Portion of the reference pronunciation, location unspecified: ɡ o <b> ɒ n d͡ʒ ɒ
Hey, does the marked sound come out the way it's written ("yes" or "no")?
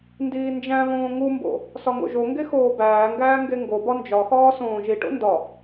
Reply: yes